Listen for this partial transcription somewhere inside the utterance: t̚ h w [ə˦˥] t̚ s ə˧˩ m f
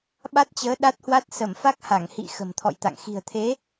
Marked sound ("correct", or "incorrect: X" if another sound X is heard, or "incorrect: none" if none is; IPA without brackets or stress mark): incorrect: a˦˥